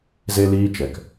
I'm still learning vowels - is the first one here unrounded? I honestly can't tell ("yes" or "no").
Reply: yes